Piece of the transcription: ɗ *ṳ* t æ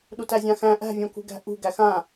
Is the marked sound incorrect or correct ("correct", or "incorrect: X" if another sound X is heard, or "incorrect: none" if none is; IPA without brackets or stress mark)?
incorrect: u